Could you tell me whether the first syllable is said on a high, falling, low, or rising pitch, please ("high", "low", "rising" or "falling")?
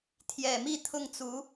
low